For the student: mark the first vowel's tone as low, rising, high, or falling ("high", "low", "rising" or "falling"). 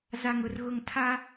low